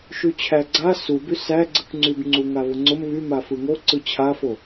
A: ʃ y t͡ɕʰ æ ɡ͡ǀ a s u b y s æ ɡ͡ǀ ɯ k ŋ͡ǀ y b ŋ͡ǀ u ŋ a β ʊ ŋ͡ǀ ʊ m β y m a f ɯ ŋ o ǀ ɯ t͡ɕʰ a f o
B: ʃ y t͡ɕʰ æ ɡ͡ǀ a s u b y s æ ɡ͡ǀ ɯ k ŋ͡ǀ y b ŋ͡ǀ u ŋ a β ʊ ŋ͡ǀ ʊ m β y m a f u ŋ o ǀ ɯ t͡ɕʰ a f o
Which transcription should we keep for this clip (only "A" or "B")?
A